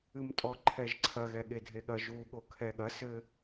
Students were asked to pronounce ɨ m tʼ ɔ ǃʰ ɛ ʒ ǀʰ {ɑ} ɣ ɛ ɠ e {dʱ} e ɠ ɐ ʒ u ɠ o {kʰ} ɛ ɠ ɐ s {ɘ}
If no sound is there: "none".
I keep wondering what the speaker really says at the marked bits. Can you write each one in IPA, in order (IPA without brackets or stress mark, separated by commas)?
ɐ, dʱ, kʰ, ɘ